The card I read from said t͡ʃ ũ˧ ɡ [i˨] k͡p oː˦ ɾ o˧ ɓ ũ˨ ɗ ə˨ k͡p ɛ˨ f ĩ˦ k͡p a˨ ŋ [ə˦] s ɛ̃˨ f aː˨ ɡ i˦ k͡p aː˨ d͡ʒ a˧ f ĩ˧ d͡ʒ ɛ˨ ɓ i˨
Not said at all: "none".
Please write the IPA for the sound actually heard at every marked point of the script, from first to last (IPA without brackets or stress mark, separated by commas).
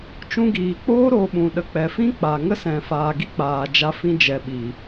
iː˨, ə˦